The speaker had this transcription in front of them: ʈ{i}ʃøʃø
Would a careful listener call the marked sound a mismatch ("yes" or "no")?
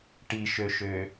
no